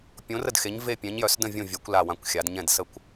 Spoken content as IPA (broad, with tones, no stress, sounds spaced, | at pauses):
pʲ õ˨˦ r ə˦˨ d x e˨˦ ɲ v e˦˨ pʲ ɛ̃˨˦ ɲ j œ˨˦ s d ə̃˦˨ vʲ õ˦˨ vʲ œ˨˦ kʷ l a˦˨ w ã˦˨ kʷ xʲ a˨˦ d ɲ ɛ̃˦˨ d s ə˦˨ kʷ